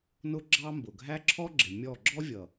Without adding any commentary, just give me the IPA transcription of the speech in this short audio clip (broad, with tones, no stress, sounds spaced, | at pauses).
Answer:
n ʊ˦ ɡ͡ǁ ɑ˦ m b ʊ˨ ɡʱ æ˦ ǁʰ ɔ˦ ɡ͡ǁ ɪ˨ mʲ ɔ˦˨ ɡ͡ǁ ɔ˦ vʲ ʌ˨